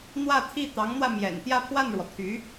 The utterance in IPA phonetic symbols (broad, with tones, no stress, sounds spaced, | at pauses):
n̪ w ä˥˧ t̪ʰ i˥˩ t̪ ɑ˧˥ ŋ n̪ w ä˧ m j ɛ̰˨˩ n t̪ j ä˥˧ pʰ w a˥˩ n ɻ w ɔ˩ t̪ʰ y˧˥